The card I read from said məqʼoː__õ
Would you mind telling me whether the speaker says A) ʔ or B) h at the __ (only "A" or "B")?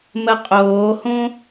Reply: B